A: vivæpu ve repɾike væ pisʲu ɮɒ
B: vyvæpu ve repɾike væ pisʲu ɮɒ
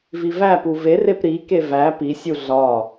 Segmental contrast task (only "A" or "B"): A